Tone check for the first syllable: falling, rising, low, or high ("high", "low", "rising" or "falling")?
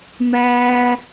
high